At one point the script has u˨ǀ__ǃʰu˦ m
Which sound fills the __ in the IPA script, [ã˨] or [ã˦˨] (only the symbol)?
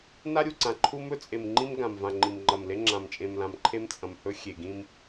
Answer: ã˨